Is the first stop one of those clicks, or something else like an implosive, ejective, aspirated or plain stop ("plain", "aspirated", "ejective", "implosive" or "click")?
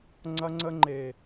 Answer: click